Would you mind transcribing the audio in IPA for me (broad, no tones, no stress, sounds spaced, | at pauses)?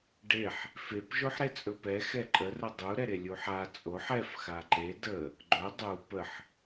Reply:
ɖ e ħ | f e p ʒ o ħ ɾ e t͡sʼ ɵ p ɛ x ɛ ǃʼ ə r ə dˤ u ɾ ɛ ɾ e lʲ u ħ a t͡sʼ o ħ ɛ f x a ǃ e d ə | ɡ͡ǃ ɵ dˤ u p ə ħ